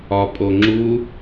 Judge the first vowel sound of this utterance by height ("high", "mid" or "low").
low